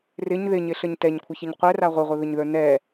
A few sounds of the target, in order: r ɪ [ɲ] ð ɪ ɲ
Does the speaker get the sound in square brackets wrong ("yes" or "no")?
no